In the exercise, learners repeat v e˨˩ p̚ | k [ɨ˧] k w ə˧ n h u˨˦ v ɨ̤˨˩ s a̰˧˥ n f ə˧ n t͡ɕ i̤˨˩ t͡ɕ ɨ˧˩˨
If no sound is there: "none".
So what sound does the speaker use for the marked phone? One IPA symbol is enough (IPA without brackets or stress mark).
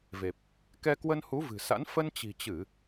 ɛ˧